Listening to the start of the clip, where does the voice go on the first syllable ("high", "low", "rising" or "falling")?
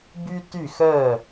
high